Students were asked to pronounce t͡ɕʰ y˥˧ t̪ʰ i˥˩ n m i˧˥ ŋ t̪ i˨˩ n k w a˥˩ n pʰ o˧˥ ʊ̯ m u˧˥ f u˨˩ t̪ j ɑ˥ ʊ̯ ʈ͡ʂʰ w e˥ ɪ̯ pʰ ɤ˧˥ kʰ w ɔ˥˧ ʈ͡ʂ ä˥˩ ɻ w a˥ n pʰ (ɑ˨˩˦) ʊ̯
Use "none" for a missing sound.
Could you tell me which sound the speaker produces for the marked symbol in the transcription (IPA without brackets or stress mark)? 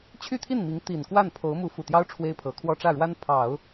ɑ˨˩˦